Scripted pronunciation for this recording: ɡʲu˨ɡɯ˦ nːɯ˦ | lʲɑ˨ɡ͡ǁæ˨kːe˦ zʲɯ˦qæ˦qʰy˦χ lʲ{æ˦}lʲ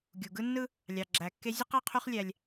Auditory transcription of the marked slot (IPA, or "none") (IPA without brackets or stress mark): æ˦